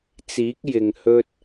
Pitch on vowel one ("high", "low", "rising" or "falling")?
rising